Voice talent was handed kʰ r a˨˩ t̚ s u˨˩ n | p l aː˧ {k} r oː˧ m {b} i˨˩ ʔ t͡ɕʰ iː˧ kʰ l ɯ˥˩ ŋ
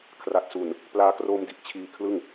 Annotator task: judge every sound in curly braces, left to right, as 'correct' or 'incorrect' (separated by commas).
correct, incorrect